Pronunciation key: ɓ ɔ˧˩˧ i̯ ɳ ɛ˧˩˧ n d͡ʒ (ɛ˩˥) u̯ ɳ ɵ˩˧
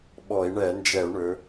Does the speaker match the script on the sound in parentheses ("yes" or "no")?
no